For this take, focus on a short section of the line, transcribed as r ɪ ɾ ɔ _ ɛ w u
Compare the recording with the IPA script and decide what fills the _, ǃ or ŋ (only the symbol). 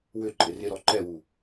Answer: ǃ